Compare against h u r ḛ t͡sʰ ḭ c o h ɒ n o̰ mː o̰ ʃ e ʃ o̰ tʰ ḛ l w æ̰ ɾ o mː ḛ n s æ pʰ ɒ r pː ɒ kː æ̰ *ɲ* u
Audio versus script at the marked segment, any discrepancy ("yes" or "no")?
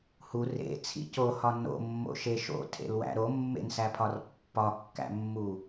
yes